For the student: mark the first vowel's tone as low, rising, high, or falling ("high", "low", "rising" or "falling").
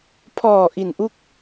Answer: low